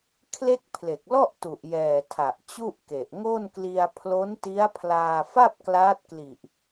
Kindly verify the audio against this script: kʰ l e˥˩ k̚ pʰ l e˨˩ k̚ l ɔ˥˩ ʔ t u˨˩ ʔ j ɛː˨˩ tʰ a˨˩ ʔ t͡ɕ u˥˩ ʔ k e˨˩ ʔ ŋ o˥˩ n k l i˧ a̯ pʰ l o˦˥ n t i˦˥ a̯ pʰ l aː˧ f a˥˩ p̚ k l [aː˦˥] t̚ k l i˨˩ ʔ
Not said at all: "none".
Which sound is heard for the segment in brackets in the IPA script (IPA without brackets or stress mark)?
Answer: aː˦˥